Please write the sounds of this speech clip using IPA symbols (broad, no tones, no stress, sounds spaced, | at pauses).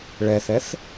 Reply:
ɭ ɛ θ ɛ θ